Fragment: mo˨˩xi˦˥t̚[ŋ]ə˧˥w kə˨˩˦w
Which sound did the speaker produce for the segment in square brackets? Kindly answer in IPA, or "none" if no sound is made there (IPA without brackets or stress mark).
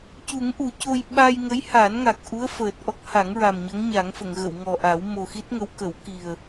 ŋ